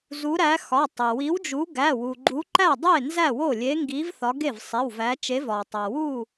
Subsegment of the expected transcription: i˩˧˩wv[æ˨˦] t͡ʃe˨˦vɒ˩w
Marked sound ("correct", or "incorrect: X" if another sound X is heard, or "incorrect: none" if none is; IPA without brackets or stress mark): correct